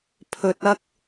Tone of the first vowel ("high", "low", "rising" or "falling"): low